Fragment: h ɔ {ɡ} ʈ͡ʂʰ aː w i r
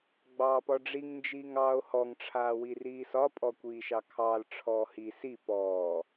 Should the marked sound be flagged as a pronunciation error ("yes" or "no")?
yes